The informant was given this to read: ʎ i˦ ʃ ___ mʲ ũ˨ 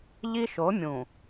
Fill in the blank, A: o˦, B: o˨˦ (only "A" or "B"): B